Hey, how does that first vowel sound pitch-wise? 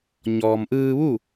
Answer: low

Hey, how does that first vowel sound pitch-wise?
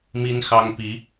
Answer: high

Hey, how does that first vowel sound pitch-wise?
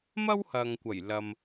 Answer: high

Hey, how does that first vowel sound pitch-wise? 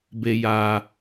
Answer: low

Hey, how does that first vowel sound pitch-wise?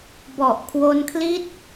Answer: low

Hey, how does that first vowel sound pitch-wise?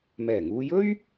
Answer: low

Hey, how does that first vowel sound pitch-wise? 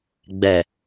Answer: low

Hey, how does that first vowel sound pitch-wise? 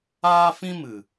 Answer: high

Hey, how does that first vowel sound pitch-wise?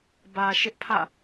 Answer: low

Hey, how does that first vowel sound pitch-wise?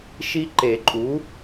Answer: high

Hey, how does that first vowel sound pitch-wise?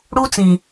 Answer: high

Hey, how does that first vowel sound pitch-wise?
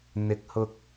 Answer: rising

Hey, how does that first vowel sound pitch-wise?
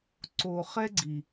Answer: low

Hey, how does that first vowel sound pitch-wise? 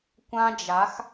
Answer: high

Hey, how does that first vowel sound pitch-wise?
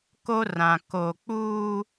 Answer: high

